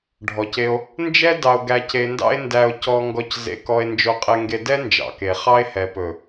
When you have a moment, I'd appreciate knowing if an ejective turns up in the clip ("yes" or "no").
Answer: yes